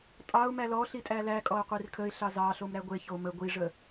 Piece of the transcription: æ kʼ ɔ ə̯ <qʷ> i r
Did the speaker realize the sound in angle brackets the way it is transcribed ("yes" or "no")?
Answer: yes